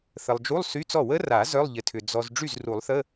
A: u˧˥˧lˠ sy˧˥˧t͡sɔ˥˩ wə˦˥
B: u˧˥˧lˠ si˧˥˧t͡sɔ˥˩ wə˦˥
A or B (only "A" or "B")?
A